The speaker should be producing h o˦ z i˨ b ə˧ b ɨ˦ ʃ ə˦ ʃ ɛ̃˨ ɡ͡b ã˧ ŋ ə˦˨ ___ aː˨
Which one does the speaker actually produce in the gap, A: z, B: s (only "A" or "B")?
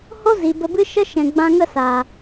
B